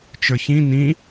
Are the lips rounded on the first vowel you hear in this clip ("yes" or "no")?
no